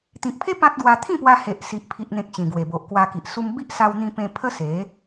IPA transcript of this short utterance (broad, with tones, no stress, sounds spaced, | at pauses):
t̪ ĩ˨ k̚ pʰ e˦ p ã˦ t̚ ɡ w a˧ t̪ʰ ĩ˥˧ p w a˧ h e˨ ʔ s i˨ ʔ pʰ i˨ ʔ n̪ ẽ˨ k̚ ɕ ĩ˨˩ ɡ w e˨˩ b o˨ ʔ k w a˧ k i˨ ʔ s u˧ m b i˦ ʔ s a˧ w n̪ ĩ˧ p ẽ˧ pʰ ə˦ s e˨˦